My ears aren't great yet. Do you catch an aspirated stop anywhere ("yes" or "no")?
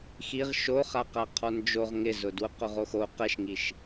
yes